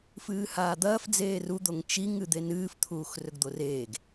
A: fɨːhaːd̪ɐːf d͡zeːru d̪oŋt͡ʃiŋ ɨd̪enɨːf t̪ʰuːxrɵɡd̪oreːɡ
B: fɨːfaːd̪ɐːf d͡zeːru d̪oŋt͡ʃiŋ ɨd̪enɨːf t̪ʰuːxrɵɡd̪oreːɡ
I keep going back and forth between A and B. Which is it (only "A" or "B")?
A